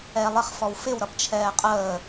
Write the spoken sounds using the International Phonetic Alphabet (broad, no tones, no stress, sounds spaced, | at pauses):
ɛː lˠ ɪ χ f ɔ w f ɪ w ɾ ʌ p t͡ʃʰ ɛː qʼ əː